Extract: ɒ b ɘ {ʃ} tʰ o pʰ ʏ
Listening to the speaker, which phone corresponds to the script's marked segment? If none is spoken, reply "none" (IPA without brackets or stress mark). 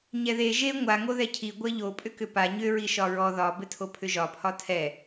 none